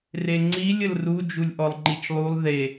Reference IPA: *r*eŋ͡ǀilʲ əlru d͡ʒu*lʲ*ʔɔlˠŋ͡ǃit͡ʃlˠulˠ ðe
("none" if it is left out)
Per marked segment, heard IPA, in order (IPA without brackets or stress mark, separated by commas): r, lʲ